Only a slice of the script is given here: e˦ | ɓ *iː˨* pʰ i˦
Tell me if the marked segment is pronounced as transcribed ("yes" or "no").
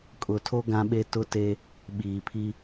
yes